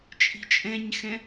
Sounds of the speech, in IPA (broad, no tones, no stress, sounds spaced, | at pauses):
t͡ʃʼ i̤ t͡ʃʼ ɛ̃ ɲ x ɛ̃